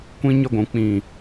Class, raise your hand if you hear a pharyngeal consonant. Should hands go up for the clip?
no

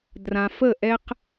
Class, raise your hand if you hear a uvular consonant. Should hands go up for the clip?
yes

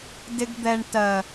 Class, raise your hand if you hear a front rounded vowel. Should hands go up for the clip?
no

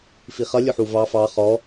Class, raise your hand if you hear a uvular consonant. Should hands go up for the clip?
yes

